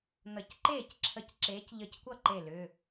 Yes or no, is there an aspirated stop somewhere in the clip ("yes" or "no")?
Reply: yes